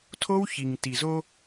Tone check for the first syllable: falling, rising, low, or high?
high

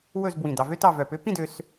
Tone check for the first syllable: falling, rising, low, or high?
falling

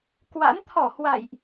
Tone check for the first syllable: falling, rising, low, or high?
rising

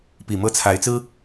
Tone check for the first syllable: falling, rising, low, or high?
low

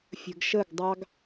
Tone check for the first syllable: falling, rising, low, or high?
low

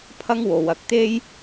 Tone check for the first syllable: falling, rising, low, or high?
high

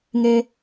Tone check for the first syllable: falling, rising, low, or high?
low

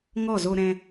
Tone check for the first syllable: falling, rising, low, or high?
falling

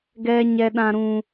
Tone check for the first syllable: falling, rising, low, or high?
high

